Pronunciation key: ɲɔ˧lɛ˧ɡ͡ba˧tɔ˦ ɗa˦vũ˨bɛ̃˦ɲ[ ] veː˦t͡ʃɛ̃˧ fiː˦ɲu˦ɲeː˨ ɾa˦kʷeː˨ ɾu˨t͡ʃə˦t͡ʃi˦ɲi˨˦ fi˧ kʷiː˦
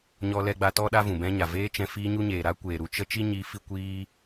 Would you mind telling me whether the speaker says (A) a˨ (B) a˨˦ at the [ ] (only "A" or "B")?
A